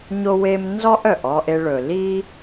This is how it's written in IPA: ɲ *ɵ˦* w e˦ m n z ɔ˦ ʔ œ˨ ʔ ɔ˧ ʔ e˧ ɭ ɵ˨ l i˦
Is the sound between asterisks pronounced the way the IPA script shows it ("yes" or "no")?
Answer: no